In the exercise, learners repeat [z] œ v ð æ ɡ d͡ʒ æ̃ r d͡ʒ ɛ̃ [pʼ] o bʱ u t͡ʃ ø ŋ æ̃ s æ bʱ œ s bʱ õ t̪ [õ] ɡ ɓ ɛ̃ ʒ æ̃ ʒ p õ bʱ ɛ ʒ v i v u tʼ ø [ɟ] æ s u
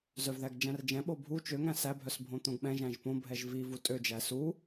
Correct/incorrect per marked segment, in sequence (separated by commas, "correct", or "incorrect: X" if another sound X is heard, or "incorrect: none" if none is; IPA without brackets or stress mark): correct, incorrect: ɓ, correct, incorrect: d͡ʒ